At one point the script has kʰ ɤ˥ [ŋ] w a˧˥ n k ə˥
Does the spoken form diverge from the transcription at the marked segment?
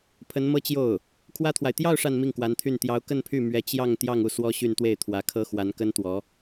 yes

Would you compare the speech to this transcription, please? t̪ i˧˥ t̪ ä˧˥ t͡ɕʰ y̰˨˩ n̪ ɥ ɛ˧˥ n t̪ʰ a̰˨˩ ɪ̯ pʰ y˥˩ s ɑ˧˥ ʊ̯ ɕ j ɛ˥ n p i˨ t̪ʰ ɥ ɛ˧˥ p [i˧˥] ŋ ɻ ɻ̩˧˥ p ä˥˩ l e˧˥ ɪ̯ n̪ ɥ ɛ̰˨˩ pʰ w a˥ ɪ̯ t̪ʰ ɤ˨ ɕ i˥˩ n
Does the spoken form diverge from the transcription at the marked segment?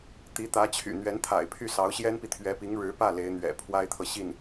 no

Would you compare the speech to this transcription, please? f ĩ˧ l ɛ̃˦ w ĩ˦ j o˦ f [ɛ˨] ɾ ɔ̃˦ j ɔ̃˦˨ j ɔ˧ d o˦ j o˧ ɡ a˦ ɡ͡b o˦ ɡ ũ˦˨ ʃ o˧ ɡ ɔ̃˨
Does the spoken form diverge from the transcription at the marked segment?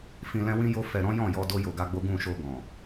yes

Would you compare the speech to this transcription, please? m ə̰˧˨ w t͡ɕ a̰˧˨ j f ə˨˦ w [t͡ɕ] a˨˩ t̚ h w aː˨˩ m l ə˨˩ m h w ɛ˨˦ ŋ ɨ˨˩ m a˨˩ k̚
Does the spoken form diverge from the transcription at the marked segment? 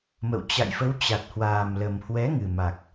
no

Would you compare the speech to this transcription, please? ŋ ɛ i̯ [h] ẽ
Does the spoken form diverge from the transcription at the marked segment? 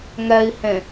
no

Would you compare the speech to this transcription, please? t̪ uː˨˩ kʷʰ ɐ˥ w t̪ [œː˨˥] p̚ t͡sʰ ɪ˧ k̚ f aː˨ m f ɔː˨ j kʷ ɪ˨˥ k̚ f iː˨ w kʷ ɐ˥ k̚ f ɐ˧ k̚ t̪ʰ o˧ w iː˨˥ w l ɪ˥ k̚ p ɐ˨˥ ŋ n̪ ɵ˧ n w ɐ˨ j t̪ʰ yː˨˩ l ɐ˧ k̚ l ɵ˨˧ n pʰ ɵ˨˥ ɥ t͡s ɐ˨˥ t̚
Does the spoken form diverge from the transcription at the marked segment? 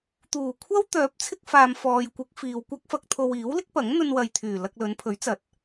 no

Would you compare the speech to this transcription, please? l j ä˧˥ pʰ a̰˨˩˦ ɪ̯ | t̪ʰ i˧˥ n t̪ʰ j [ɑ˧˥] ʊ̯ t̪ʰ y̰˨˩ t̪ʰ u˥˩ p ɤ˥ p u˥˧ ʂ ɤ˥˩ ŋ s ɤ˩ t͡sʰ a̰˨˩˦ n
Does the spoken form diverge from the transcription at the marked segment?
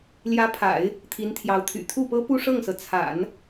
no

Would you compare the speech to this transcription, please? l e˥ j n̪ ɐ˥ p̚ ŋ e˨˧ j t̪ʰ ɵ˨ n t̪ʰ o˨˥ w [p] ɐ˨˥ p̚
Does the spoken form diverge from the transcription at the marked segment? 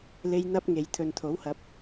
yes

